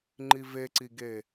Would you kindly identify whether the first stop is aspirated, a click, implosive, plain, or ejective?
click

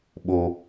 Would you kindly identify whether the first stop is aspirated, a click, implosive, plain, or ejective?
implosive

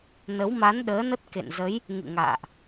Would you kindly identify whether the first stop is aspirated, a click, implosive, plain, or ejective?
implosive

